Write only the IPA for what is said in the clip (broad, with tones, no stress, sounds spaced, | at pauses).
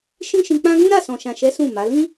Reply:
ʃ ĩ˦ ʃ ĩ˧ k͡p ã˦ ɡ ũ˦ ɾ a˦˨ s ɔ̃˨ ʃ ã˨ ʃ ɛ˨˦ s ũ˦˨ m a˨˦ l ĩ˦